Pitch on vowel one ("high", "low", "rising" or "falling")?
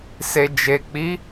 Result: low